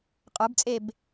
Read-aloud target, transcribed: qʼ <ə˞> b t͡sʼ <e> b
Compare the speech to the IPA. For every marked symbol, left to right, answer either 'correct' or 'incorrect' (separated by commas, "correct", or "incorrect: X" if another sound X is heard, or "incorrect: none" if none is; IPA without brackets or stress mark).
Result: correct, correct